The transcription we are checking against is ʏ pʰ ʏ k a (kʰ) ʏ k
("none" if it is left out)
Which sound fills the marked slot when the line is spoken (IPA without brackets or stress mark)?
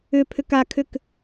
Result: kʰ